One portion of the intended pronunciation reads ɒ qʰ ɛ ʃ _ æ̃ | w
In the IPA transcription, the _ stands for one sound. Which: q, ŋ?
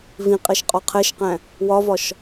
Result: q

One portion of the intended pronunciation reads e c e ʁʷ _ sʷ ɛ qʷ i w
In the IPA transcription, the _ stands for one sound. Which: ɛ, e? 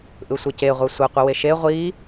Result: ɛ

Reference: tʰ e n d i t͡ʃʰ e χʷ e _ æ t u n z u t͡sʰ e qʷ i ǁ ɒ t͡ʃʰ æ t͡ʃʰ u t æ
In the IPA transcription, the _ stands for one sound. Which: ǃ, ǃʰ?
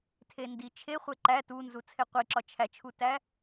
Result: ǃ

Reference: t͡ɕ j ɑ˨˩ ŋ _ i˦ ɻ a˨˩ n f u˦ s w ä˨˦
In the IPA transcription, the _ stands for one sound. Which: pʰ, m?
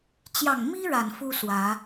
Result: m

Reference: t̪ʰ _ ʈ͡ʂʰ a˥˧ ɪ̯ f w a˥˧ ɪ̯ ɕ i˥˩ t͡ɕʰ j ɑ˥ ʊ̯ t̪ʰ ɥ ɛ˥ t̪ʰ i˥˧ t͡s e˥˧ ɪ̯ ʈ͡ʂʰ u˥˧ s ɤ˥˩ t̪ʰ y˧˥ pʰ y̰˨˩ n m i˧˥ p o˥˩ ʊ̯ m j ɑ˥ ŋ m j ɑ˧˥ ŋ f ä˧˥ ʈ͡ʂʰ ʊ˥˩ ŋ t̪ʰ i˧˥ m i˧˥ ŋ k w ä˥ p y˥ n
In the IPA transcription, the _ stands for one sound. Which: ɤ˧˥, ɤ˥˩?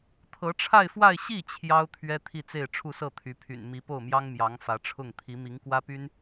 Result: ɤ˧˥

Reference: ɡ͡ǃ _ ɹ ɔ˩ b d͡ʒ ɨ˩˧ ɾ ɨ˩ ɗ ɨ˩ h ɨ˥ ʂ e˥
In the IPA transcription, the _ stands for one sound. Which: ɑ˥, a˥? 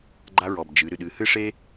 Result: a˥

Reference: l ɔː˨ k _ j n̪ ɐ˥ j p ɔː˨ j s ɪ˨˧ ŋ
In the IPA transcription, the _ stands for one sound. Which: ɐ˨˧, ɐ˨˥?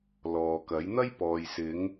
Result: ɐ˨˥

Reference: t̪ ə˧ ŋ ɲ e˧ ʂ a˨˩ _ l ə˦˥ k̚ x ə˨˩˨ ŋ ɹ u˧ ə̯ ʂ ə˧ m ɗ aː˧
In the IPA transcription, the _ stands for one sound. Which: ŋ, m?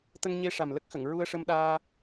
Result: m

